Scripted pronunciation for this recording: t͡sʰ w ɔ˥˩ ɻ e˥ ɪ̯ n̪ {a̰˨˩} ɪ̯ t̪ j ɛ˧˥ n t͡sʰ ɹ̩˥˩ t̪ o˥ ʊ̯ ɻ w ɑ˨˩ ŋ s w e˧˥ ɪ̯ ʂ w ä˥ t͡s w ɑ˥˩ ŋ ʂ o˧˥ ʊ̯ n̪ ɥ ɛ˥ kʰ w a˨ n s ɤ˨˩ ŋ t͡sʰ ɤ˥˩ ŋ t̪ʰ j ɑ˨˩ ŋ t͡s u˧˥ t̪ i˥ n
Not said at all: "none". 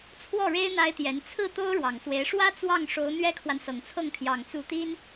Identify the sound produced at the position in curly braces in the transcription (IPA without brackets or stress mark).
a˥